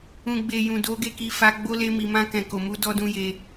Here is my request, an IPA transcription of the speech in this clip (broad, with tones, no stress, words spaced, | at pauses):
ũ˨ɡ͡be˨ jũ˨do˨˦ɡe˦˨ki˧ fa˧ ɡ͡bo˦ le˧mi˨mã˧ kɛ̃˨ko˨mu˨˦ dɔ˦dũ˦je˧